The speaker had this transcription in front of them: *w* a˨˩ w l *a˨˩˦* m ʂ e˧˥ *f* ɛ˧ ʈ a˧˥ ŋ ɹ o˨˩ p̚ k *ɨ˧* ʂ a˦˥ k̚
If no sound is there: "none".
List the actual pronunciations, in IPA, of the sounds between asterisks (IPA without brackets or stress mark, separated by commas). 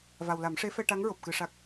v, a˨˩˦, f, ɨ˧